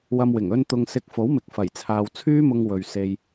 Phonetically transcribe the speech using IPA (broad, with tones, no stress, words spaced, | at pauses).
wɐ˧mwɪ˨˩ŋ ɵ˧n t̪ʊ˨ŋsɪ˨˥k̚ fo˨˥wmɪ˨k̚ fɐ˨˩jt͡sʰaː˨wt͡sʰyː˥mʊ˧ŋ wɵ˨ɥse˧j